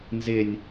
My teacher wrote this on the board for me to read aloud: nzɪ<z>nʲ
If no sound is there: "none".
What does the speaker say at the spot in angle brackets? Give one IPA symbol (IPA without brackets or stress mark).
none